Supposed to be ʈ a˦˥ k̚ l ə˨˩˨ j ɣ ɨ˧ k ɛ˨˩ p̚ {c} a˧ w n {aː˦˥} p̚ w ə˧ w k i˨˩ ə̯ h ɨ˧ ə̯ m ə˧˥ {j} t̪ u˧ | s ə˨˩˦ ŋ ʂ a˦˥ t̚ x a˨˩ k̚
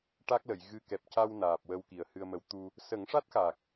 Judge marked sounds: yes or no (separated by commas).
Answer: yes, no, no